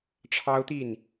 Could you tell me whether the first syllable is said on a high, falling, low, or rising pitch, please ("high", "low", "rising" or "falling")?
high